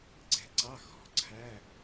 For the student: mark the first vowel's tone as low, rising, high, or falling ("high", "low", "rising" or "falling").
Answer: low